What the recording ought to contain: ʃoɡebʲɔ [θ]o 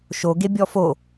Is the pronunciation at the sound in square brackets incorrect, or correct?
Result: incorrect: f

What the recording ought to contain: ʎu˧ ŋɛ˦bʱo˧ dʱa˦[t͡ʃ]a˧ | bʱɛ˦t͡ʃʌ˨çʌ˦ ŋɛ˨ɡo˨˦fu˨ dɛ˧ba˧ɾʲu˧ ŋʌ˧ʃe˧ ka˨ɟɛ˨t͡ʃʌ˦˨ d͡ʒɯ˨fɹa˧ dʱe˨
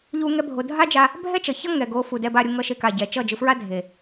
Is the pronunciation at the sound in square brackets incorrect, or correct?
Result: incorrect: d͡ʒ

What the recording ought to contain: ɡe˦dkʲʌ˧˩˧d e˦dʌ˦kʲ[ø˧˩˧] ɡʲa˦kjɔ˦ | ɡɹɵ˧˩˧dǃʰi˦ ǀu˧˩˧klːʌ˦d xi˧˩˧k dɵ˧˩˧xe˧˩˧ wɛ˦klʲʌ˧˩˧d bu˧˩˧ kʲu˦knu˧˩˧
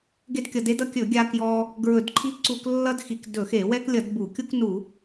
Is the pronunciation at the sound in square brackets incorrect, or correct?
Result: incorrect: ɵ˧˩˧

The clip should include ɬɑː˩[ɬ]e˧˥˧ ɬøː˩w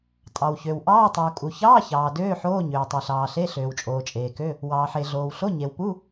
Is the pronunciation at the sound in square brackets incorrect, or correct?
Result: correct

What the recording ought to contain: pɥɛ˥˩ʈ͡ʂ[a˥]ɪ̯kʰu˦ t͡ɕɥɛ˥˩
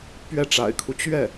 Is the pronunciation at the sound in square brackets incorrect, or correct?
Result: incorrect: a̰˨˩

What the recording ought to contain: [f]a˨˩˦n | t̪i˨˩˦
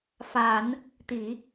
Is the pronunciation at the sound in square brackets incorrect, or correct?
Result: correct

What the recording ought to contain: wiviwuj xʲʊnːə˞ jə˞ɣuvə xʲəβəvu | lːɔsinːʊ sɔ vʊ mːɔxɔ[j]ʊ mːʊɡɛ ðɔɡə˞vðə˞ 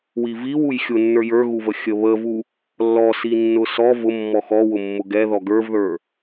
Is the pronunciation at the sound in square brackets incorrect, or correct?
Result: incorrect: w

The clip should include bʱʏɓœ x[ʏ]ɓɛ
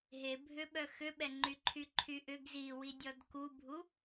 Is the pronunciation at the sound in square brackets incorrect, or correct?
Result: correct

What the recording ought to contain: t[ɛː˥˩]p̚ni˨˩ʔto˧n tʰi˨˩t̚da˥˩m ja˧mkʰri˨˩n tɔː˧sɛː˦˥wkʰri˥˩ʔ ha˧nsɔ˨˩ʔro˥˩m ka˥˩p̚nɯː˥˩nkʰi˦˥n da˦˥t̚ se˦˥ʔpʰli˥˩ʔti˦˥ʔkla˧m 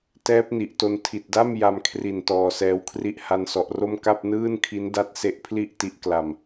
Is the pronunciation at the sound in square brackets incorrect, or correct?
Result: incorrect: ɛː˦˥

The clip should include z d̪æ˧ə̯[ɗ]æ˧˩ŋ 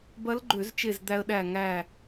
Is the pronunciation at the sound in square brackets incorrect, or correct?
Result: correct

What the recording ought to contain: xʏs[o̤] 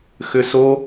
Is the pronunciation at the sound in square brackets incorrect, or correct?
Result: incorrect: o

